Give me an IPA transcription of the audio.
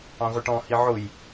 ɑ̃ ʁʷ ɪ ʈ ɔ̃ h i ʕ ʊ j

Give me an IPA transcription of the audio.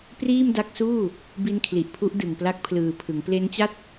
p r iː˥˩ m d a˦˥ k̚ s uː˥˩ | b i˦˥ n kʰ l i˨˩ ʔ pʰ u˦˥ ʔ d ɯ˨˩ ŋ p l a˦˥ k̚ pʰ l ɯː˨˩ pʰ ɯ˩˦ ŋ p l e˦˥ n t͡ɕ a˥˩ t̚

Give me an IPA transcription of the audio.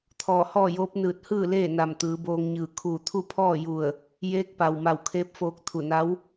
t̪ʰ ɔː˧˩ h ɔː˥˨ j oː˧˥ p̚ n ɯː˧˩ t̚ h ɯː˥˨ l eː˥˨ n a˧˩ m t̪ ɯː˩˧ b oː˧ ŋ ɲ ɯː˧˩ kʰ uː˧˩ t̪ʰ u˥˨ pʰ ɔː˥˨ j u˧˩ ə̯ | j eː˧˥ k̚ p a˩ w m a˧˩ w kʰ eː˧˥ p̚ f oː˧ k̚ t̪ʰ u˧˩ n a˧˥ w

